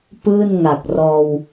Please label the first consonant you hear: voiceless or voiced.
voiceless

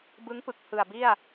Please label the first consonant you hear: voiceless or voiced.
voiced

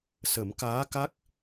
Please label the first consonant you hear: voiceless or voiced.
voiceless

